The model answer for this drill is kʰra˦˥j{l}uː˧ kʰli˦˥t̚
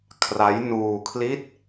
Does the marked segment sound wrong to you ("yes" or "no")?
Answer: yes